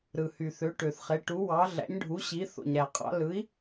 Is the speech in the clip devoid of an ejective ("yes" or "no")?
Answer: no